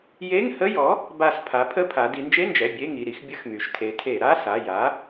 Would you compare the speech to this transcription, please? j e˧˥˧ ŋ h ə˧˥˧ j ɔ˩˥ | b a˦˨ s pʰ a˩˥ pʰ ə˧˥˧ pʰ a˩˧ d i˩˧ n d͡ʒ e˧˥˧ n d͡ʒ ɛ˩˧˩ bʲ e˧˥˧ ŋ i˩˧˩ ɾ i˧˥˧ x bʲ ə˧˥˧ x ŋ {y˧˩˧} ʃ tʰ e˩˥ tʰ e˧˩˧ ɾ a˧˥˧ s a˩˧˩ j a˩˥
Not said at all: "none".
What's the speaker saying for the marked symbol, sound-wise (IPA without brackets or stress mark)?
y˩˧